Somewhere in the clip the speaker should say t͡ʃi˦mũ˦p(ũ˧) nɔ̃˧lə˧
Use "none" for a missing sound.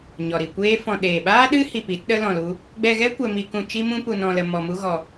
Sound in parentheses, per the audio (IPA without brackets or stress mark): u˧